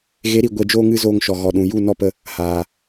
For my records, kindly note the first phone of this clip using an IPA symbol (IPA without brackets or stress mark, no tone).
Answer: ɣ